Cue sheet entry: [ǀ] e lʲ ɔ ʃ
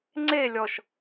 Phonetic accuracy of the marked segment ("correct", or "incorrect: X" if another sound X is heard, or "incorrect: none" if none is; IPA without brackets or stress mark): incorrect: ŋ͡ǀ